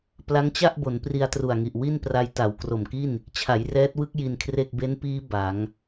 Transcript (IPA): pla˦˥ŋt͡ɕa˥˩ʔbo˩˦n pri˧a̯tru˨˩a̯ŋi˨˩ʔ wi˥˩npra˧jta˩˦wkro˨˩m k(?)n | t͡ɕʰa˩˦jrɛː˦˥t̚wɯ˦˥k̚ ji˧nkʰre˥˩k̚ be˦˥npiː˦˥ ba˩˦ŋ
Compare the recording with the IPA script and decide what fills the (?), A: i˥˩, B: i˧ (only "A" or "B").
A